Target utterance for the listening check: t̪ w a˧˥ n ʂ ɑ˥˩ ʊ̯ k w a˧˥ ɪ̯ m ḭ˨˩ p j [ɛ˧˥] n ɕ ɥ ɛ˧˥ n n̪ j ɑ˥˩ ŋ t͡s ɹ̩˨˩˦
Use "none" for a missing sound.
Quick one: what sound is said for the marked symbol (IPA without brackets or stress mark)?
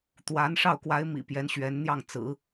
ɛ˧˥